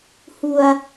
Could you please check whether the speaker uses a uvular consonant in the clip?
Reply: no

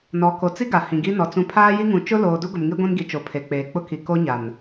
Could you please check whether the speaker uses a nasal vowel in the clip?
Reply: yes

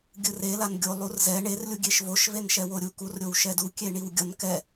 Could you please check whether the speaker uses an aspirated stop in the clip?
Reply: no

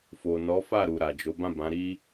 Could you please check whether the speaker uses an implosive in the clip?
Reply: no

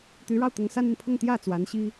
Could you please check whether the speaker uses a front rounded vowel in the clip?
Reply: yes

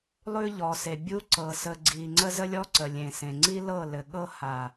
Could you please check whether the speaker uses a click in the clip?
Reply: yes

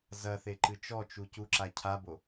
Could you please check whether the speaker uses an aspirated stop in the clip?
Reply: yes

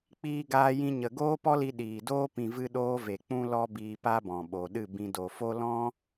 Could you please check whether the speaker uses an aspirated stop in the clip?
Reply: no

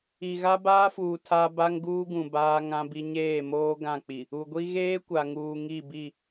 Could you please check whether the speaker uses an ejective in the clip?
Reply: no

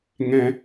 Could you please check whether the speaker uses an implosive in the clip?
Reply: no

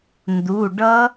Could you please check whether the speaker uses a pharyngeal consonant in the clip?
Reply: no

